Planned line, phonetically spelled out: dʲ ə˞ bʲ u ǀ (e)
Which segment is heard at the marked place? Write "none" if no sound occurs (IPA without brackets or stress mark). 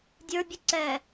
ɛ